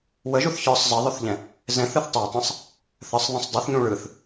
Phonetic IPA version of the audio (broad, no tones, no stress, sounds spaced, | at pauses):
w ə ʒ u θ ç ə˞ sˤ z ə ðˤ ɵ θ ʎ ɛ̃ | z ɛ̃ θ ɯ θ tˤ ɛ tˤ ɛ̃ sˤ | θ ə sˤ ðˤ ə̃ sˤ dˤ ɯ θ ɲ ũ ɭ ɯ θ